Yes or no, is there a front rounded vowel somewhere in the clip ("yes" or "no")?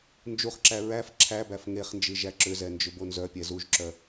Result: yes